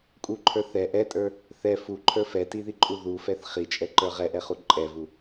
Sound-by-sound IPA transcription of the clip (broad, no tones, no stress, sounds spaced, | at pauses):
kʼ u ǃʰ ə˞ θ ɛ ʔ ɛ tʼ ə˞ | θ ɛ f u ǃʰ ə˞ f ɛ t i ð i ǃʼ u ð u f ɛ θ χ i t͡ʃʼ ɛ ǃ ə˞ ʁ ɛ ʔ ɛ χ u ǃʼ ɛ v u